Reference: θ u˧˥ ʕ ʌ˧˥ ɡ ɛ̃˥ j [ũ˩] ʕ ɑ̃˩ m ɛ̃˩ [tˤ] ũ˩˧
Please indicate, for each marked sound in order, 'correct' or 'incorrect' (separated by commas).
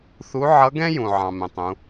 correct, correct